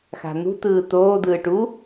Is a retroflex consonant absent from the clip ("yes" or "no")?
no